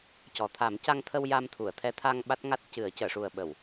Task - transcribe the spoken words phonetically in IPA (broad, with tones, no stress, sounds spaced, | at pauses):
c ɔ˨˩ t̪ʰ a˨˩˦ m c a˧ ŋ t̪ʰ ə˧ w j a˧ m t̪ʰ u˨˩˨ ə̯ t̪ʰ ɛ˧˥ t̪ʰ a˧ ŋ ɓ a˦˥ t̚ ŋ a˦˥ t̚ c ɨ˨˩˦ ə̯ c əː˨˩˨ ʂ u˨˩ ə̯ ɓ ə˨˩˨ w